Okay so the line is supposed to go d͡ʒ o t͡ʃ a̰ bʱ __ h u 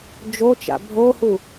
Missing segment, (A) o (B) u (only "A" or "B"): A